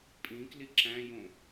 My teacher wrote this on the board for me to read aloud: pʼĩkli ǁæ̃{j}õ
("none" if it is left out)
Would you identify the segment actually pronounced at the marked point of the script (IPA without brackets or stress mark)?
j